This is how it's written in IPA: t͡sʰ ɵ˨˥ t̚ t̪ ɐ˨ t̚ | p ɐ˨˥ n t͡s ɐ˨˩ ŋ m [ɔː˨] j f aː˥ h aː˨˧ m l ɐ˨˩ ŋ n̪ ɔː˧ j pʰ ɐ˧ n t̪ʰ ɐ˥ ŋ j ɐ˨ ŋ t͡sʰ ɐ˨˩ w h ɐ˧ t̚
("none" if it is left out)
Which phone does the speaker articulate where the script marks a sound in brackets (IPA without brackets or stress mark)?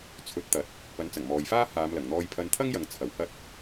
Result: ɔː˨